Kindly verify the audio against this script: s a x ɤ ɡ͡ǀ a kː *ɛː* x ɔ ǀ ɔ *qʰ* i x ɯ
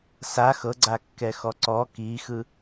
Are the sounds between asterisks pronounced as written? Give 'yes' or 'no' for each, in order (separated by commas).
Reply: no, no